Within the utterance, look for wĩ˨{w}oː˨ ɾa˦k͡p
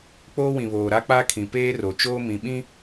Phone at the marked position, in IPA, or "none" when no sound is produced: β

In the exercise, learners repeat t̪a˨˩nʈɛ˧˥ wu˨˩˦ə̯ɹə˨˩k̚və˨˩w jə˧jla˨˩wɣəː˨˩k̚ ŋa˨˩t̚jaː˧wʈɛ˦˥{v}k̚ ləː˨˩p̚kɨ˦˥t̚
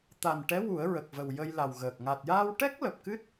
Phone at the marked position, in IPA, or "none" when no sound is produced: none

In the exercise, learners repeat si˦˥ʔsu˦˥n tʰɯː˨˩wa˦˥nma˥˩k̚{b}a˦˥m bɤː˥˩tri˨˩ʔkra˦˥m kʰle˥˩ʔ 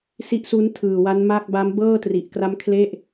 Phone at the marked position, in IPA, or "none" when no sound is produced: b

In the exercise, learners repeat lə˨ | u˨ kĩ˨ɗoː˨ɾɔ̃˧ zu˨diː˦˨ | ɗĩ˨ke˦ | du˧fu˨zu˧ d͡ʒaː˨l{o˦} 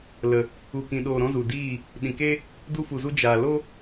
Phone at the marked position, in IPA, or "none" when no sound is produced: o˦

